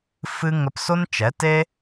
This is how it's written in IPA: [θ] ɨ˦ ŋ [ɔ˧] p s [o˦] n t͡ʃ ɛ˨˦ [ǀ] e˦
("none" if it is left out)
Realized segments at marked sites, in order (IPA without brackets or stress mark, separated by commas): f, ə˧, o˦, t